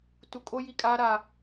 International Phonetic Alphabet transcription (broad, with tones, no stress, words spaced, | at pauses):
tu˨kʼo˦ ji˦kʼaː˦ɾa˦˨